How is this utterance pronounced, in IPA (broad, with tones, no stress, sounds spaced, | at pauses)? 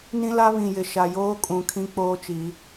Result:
n ĩ˦ l a˦ β ĩ˨ j ɪ˨ ʃ a˨ j oː˦ kʼ ũ˨ kʰ ĩ˦ k͡p oː˦ t͡ʃ iː˨˦